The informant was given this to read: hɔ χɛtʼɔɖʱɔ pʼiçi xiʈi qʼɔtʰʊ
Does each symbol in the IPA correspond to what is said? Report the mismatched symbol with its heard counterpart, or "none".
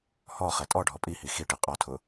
ç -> h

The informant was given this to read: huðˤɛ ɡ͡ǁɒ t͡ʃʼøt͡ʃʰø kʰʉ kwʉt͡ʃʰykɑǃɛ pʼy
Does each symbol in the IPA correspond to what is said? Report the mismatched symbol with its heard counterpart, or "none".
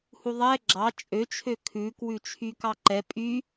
ɒ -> ɑ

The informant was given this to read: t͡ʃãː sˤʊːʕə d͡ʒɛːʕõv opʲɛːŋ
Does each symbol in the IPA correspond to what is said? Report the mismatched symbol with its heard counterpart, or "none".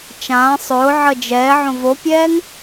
none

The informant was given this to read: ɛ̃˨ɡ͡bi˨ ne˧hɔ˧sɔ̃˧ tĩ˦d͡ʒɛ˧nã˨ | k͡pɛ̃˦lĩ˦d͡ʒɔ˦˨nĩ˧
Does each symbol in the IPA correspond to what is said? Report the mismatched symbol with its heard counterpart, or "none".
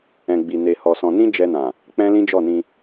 t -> n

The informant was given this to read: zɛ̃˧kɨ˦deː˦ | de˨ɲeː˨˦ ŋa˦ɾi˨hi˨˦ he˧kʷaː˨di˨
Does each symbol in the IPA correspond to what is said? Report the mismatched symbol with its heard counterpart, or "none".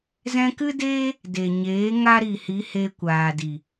none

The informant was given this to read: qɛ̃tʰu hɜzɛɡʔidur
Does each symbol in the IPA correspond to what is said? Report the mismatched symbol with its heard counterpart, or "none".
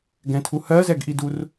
q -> ɡ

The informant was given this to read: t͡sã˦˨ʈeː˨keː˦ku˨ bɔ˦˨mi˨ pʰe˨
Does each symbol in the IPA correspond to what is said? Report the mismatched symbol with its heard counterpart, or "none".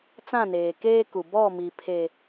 ʈ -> n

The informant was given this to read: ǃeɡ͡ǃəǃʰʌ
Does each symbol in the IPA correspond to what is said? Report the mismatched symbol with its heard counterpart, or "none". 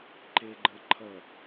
none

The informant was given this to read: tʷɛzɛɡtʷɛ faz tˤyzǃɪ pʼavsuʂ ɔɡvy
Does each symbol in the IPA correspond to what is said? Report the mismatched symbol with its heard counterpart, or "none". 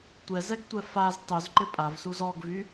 ʂ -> z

